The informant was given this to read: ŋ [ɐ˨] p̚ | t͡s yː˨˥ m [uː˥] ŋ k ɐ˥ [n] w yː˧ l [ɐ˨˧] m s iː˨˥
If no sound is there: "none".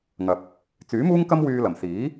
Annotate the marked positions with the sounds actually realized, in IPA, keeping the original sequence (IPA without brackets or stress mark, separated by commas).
ɐ˨, uː˥, m, ɐ˨˩